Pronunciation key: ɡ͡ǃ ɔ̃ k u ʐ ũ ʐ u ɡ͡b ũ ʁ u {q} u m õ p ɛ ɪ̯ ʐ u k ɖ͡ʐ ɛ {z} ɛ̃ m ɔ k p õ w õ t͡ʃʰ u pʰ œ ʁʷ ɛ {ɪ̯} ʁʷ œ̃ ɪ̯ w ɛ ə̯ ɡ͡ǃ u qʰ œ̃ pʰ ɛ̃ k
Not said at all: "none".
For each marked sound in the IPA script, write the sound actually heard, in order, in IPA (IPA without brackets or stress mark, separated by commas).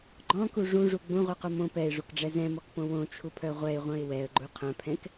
q, z, ɪ̯